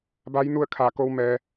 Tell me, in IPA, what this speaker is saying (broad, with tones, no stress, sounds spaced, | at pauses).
b a˧˥ j n u˥˨ ə̯ kʰ aː˧˩ k o˧ w m ɛː˩